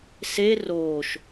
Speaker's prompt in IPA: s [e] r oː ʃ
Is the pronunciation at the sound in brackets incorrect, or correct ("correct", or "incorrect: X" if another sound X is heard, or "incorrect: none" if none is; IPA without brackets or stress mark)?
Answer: correct